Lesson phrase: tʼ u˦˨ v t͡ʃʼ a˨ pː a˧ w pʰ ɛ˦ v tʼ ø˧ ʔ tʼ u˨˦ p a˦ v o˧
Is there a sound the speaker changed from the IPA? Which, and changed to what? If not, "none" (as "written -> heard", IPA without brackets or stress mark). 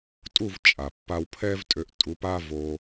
none